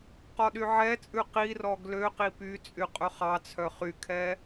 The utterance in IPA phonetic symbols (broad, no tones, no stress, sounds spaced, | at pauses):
q ɔ ɗ y ʕ ɛ t͡sʼ ʉ q i r ɔ ɡ l ø q i p y t͡sʼ y qʼ ɵ χ ɑ t͡sʰ œ χ y kʰ ɛ